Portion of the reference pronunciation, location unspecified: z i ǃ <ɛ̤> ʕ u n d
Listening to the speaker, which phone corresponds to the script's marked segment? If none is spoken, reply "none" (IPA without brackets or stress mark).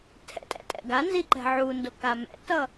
ɛ̤